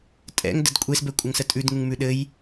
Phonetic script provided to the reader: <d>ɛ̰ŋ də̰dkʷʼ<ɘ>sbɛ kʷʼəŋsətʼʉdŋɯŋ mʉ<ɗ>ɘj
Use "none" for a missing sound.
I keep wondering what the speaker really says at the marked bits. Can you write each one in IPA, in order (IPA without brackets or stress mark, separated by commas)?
tʼ, e, ɗ